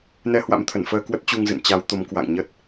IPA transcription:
nɛ˧hwa̰˧˥mt̪ʰə˧˩nfəː˧ kwə˦˥t̚t͡ɕu˧ŋzɨ̰˧˨n t͡ɕa˨˦wt̪o˨˦mkwa̰˧˨ŋɲə˦˥t̚

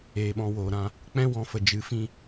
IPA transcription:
eː˧ɓɔ̃˦˨woː˨ɾã˧ | k͡pɛ̃˦wɔ̃˨fə˨ d͡ʒɨ˨˦fĩ˧

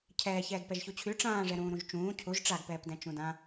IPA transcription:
cʰɛːçɛːɡ pɛʒçut͡ɕʰy ʈ͡ʂãːʐɛ ɾũːɾũʒt͡ʃũː cʰuʒ ʈ͡ʂaɡpɛːpdɛ̃ t͡ʃũdã

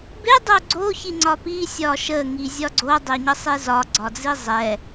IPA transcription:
be dˤoɡ͡ǀo çiŋ͡ǀɒpi sʲɒʃə ŋizʲɒɡ͡ǀo dˤeɲəsˤezɒ ɡ͡ǀɒd͡zizˤɛ

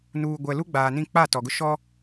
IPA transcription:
nuː˨ɡʷɛ˨ lu˦ɡ͡baː˨nĩ˦˨ k͡pa˦˨ tɔ˨ɡʊ˦ ʃɔ˦

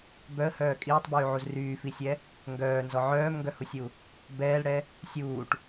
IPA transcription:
bœə̯hœː kʼiːtˤbyːʕuz ryːfisʲɛ | ŋɡœːnzɔ ʕœːmŋɡœhusʲu | bɛːlɽɛ | sʲuːʈ

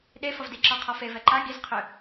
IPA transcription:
ɗefʌv diǁɒqʰɒfe vɛǃa ɡiz qʰø

